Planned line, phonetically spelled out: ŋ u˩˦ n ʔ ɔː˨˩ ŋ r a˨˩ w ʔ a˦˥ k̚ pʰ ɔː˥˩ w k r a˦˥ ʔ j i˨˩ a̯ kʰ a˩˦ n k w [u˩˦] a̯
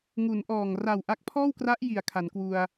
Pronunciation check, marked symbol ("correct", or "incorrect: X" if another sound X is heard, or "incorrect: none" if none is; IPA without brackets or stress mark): incorrect: u˧